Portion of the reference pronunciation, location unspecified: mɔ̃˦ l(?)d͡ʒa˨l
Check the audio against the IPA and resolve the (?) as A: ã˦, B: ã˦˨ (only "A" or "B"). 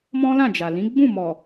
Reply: B